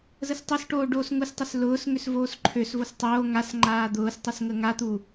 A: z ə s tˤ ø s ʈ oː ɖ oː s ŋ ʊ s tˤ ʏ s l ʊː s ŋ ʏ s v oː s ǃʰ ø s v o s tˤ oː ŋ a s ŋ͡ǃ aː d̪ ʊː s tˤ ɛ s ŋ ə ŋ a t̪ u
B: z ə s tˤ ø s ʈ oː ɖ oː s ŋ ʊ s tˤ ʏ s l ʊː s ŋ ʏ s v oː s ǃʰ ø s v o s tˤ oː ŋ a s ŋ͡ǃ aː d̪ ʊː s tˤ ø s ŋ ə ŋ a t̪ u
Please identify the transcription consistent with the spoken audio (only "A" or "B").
A